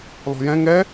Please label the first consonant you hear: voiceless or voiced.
voiced